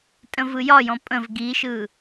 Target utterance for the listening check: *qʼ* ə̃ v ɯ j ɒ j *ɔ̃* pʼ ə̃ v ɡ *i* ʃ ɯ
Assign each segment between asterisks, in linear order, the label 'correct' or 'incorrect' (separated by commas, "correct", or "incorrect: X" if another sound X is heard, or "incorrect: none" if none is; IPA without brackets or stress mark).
incorrect: tʼ, correct, correct